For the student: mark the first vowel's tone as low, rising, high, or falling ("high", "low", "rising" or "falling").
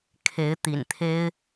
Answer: rising